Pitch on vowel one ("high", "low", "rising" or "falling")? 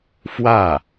falling